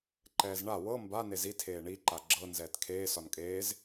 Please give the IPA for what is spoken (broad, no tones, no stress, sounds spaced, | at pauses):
ǃ ɛː z ɳ a w ɤ m b a n e z i tʰ eː ɳ i ǃ a ɡ͡ǁ ɤ n z ɛː t kʰ eː s ɒ n kʼ eː z